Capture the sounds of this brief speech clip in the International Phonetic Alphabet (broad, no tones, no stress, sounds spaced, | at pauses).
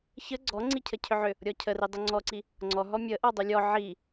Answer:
ç ə ɡ͡ǀ ɔ ŋ͡ǀ i cʰ ə cʰ ʏ ʕ ʏ | ɾʲ ɔ cʰ ə r i dˤ ʏ ŋ͡ǀ ɔ ǀ i | ŋ͡ǀ ɔ ɦ ɔ mʲ ə ʔ ɔ dˤ ʏ lʲ ɔ ʕ i